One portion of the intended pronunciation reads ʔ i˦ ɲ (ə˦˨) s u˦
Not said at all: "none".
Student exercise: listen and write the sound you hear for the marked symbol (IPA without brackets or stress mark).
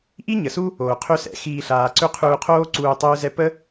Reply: ə˨